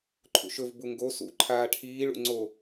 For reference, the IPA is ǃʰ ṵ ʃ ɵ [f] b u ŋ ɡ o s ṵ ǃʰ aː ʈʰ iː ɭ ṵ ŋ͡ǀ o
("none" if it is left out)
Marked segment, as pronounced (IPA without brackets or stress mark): v